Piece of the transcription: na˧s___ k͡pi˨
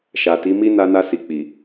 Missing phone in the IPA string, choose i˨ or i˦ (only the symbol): i˨